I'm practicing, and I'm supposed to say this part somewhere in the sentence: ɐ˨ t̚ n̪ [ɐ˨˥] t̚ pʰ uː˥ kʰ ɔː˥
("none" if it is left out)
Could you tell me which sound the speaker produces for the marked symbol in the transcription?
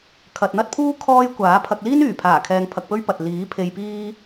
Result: ɐ˥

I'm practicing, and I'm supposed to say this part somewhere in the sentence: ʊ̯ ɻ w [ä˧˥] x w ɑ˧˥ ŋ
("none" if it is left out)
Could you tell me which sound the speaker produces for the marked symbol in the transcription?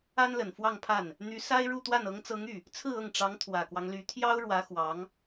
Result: ä˧˥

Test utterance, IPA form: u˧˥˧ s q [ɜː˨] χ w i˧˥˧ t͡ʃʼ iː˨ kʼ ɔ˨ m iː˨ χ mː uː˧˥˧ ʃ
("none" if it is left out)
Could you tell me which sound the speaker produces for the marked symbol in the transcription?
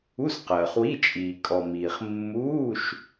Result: ɜː˨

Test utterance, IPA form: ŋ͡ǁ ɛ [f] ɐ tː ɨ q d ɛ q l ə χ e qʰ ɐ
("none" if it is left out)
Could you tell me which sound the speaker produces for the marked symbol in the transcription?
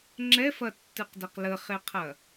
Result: f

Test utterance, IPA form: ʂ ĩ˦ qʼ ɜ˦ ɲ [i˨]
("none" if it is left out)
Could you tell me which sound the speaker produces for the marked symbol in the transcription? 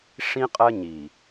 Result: i˨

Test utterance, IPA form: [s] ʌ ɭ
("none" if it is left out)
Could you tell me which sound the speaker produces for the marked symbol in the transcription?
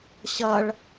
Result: ɕ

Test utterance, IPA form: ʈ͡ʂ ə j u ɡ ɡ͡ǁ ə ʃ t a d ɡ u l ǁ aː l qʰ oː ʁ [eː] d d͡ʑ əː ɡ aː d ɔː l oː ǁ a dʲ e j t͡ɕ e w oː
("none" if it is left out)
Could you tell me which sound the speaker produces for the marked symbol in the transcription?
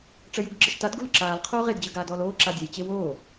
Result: e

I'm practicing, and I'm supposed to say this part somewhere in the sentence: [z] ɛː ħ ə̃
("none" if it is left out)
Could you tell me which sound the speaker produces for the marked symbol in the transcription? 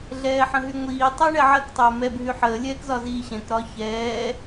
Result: ɮ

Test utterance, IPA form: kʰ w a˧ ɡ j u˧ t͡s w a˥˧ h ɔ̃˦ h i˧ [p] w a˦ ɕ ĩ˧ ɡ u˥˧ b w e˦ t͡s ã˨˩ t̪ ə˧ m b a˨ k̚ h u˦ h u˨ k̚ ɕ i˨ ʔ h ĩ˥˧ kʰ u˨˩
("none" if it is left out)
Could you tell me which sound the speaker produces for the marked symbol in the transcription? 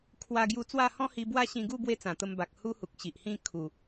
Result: b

